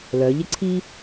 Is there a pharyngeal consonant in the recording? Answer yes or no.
no